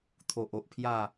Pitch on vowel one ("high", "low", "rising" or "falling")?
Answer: low